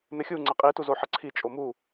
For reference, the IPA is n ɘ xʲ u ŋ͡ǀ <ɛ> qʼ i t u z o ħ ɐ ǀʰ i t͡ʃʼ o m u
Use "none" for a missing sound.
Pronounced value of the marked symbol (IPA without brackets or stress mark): ɛ